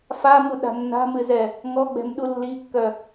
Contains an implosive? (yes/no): yes